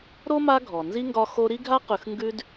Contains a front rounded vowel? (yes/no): no